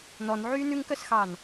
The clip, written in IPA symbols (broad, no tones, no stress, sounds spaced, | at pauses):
n ɔ n ʕ yː n ʉ ŋ k œ s x ɑ n